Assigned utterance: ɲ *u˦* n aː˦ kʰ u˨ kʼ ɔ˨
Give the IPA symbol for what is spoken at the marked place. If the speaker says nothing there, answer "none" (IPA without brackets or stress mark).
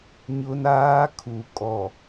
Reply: ʊ˦